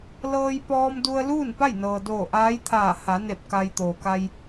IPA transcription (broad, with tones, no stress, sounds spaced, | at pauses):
l ɤː˧ j p ɔː˧ m d u˧ ə̯ l uː˥˨ n p a˥˨ j n ɤː˩ d oː˧˩ ʔ aː˧˥ j t̪ʰ aː˧˩ h a˩˧ n e˧˩ p̚ k a˧ j t̪ oː˩ k a˧ j